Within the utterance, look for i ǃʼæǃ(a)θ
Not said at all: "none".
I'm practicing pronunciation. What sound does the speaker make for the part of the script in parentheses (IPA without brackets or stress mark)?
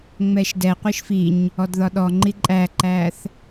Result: æ